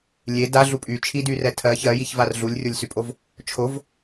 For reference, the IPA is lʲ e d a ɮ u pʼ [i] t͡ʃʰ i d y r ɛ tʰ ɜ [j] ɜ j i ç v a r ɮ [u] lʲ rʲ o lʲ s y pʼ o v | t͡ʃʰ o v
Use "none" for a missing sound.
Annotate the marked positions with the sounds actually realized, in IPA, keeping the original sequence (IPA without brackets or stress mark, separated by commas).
y, ç, u